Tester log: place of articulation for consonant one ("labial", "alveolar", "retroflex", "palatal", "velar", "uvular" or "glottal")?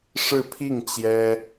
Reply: retroflex